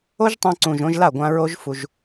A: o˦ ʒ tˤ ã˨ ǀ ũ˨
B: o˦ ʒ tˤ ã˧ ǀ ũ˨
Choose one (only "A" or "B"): B